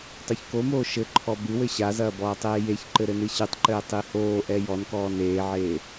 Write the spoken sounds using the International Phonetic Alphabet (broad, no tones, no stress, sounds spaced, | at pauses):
tˤ u ç k o m oː ʃ ɘ ǃʰ ɔ b ɨ w ɘ ɕ a z ɐː b ɔː tˤ eː j e ç ǃ ɘ ɾ ɘ n ɨ ɕ ɨ tˤ ǃ ɘː tˤ i h oː ʔ ɛ j ɔ n k ɔː n eː ʕ eː